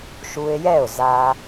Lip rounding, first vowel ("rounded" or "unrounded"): rounded